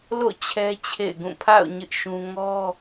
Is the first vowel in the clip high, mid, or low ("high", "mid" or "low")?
mid